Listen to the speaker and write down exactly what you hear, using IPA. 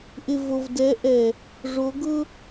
ʔ ɪ˨ v o˨ v d ɛ˨˦ ʔ ɛ˨ | ʐ o˨˦ ɡ ʊ˦

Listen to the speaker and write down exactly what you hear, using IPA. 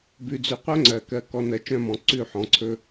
b ʉ˨ d͡z ʉ˨ qʷ œ˦ ŋ͡ǀ ɜ˨ k ɜ˨ k ɔ˨ n ɜ˨ t͡ʃ œ̃˦˨ m ɔ̃˨ ǀ ʉ˦˨ ħ ɔ̃˨ ǀʰ ɵ˦

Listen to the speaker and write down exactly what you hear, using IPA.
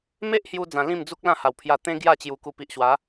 m e˦ ʔ h j u˧ d͡z ã˧ l ĩ˥˧ m d͡z u˦ k̚ l ã˥˧ h a˨˩ w pʰ j a˧ t̪ ẽ˦ ɡ j a˥˧ t͡ɕ j u˧ k u˧ p i˨ ʔ ɕ w a˨˦

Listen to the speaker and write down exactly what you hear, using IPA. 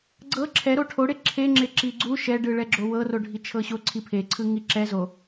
ɡ͡ǀ ɤ ǁʰ ɛ ɾ o ʈʰ o ɽ e ǁʰ e ŋ͡ǁ e ǁ i ɡ͡ǀ u ʃ ɛ ɖ ɯ ɭ ɛ ɡ͡ǁ o w ɤ r o ɖʱ i t͡ʃʰ ɤ ɕ o ǀʰ i pʰ e ǀʰ ɯ ŋ i ǁ ɛ z o

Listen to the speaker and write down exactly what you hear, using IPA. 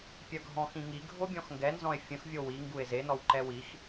pʲ œ ɡʱ ɔ̃ x ĩ ŋ i ɡʱ o bʲ ɔ̃ x ŋ ɡ ɛ n z ɔ̃ e̯ fʲ ə̃ x vʲ o w i ŋ ɡ u e̯ z e n ɔ w ǃ ɛ w i x

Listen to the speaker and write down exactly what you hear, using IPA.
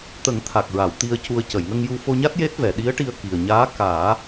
t̪ ə˨˩˦ ŋ t̪ʰ a˨˩ k̚ ɹ a˨˩˨ w t̪ i˧ ə̯ c u˧ ə̯ c ə˨˩˨ j ŋ ə˧ ŋ j u˧ f o˧ ɲ a˦˥ t̚ j e˦˥ t̚ v ɛ˨˩˨ ɗ i˧˥ ə̯ ʈ i˧ ə̯ k i˨˩ ə̯ ɲ aː˧˥ k aː˨˩˦

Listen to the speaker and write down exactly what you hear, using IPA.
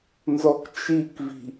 n z ɔ k t͡ʃ i k v i̤

